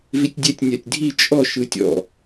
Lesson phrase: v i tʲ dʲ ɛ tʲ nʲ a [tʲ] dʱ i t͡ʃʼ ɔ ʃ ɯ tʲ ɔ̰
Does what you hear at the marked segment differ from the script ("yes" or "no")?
no